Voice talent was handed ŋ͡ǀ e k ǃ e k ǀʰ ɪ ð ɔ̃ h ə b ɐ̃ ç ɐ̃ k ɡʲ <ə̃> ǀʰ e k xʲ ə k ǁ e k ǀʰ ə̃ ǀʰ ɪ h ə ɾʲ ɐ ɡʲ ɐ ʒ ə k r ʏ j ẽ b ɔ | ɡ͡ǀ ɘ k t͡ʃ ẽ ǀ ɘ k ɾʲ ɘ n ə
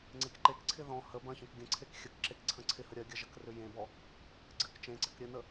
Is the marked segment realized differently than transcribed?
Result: no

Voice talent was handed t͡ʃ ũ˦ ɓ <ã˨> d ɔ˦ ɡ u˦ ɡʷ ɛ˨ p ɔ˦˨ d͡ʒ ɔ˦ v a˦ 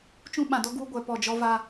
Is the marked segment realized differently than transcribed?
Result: no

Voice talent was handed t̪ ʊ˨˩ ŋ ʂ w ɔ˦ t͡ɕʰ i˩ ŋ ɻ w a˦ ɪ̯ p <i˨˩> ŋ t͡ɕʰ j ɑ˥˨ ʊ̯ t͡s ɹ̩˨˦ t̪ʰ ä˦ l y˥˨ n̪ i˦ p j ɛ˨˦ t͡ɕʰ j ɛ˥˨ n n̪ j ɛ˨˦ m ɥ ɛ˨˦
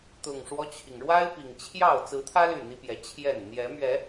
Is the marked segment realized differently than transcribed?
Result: no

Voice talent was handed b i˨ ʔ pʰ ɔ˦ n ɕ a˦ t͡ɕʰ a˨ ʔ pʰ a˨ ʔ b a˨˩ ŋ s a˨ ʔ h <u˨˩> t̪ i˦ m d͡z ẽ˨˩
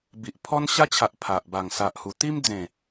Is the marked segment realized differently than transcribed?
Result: no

